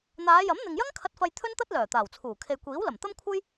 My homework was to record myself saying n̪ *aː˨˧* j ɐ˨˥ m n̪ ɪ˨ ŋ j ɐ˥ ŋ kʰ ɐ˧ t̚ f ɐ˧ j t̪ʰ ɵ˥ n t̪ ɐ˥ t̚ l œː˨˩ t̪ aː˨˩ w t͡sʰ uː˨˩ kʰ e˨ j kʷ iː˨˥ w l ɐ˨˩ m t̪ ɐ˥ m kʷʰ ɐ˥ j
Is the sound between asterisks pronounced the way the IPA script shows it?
yes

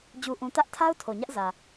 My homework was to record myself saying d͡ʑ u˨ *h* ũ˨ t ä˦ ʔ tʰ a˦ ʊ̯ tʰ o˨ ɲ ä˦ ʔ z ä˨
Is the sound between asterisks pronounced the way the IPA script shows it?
no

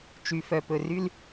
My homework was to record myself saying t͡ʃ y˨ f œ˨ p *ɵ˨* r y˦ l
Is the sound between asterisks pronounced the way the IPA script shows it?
yes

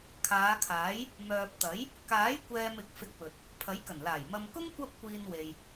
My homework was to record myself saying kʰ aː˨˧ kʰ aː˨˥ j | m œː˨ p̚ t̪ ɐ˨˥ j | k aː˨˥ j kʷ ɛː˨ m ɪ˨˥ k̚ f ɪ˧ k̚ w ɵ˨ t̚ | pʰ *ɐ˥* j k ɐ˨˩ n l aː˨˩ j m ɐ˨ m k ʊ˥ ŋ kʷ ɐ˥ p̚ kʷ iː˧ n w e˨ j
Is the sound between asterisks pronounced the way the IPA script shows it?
no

